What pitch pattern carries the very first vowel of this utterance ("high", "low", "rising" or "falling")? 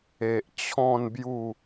low